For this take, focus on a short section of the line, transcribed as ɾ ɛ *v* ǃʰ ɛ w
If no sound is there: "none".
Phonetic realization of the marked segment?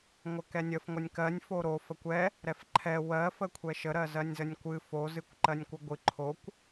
f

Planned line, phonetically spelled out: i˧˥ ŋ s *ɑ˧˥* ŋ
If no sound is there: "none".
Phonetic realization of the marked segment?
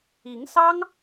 ɑ˥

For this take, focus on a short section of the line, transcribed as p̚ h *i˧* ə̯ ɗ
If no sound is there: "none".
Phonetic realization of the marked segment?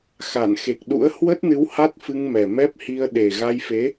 i˧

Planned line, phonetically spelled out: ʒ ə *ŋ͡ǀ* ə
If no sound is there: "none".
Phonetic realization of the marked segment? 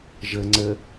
ŋ͡ǀ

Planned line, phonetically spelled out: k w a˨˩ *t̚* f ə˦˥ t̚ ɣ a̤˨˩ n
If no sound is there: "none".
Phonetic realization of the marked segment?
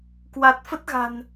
t̚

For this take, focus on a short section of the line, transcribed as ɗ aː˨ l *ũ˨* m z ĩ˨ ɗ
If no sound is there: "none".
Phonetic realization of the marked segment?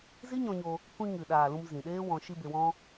ũ˧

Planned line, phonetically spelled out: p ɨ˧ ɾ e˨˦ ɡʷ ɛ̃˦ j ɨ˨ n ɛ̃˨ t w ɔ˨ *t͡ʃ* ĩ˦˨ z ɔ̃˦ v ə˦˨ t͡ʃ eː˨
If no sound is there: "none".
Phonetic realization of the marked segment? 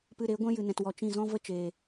t͡ʃ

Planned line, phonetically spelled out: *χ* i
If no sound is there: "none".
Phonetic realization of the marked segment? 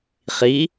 χ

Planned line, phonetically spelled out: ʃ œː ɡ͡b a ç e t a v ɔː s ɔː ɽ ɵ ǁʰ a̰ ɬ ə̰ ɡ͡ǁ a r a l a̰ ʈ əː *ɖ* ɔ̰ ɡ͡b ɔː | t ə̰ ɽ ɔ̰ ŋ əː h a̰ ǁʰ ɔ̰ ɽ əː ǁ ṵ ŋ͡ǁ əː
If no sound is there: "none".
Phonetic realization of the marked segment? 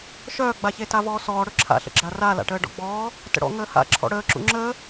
ɖ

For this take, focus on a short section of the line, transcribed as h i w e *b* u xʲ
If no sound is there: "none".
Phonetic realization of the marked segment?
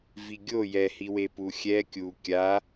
p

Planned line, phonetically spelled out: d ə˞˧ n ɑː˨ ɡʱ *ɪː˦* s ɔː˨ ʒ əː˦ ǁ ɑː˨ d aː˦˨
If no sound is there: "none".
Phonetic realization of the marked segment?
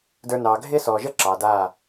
ɪː˦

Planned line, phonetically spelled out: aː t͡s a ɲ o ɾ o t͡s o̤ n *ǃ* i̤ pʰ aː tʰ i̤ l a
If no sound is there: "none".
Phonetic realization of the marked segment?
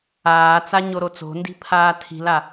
d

